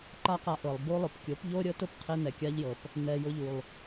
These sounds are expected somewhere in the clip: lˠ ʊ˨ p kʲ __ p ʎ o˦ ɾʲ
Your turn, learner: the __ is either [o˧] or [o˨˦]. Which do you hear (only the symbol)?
o˨˦